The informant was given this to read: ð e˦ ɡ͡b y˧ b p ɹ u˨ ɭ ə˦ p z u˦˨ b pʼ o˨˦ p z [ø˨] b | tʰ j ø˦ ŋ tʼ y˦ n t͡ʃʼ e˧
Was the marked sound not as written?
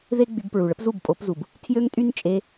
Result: yes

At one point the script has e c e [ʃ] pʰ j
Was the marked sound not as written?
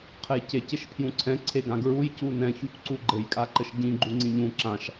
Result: no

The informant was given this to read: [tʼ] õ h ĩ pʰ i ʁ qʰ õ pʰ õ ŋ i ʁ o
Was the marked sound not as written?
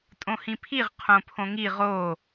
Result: no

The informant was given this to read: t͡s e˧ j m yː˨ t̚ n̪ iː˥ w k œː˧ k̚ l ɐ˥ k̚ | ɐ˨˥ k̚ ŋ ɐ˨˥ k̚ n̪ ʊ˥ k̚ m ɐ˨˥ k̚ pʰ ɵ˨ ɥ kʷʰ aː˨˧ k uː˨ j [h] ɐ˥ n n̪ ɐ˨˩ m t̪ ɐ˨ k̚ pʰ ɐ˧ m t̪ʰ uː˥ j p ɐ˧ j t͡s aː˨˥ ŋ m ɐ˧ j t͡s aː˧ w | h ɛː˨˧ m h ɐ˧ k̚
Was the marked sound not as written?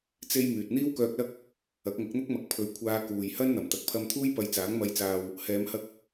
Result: no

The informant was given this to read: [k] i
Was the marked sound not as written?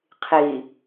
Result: yes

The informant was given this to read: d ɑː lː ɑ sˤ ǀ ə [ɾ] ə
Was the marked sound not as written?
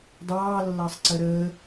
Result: no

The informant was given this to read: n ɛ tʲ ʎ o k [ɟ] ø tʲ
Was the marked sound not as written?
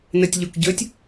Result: no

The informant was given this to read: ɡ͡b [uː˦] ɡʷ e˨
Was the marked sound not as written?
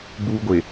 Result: no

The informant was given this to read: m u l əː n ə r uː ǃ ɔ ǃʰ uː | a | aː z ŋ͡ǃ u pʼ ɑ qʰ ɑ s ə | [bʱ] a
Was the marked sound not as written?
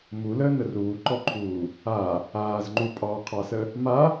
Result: yes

